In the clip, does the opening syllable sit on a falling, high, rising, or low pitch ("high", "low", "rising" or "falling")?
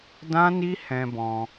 high